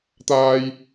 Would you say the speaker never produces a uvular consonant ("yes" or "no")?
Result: yes